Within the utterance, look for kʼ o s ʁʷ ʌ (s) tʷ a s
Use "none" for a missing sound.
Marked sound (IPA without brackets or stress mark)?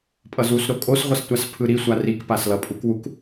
s